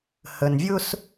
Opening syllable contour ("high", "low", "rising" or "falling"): low